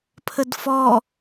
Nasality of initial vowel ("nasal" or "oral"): oral